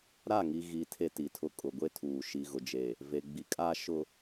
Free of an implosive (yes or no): yes